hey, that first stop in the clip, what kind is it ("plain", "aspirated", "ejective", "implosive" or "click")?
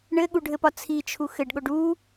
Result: implosive